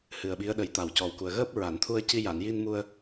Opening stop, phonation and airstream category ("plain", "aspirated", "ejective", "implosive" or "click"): implosive